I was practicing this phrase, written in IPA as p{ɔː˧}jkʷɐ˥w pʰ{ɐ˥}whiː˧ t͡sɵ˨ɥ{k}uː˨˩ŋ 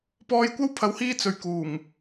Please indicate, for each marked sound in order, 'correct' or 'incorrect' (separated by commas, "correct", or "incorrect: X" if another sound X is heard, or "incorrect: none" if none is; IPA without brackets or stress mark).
correct, incorrect: ɐ˨˥, correct